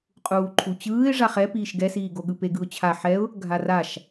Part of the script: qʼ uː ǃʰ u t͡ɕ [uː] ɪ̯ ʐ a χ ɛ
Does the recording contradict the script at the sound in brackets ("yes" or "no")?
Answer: yes